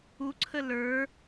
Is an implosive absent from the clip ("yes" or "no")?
yes